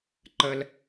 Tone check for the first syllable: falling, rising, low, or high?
high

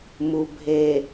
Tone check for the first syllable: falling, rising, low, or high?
low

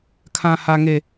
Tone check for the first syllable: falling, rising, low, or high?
high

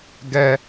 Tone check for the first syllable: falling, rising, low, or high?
high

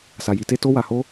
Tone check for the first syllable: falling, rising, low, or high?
low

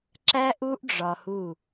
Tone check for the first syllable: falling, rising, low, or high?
high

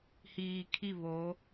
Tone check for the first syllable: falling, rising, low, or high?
low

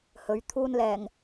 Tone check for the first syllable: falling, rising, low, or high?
rising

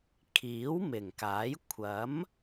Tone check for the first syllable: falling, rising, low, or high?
rising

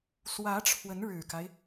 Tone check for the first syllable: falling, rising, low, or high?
rising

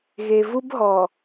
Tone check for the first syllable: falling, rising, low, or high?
low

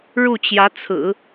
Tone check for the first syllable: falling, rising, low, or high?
falling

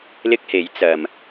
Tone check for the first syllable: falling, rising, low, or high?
high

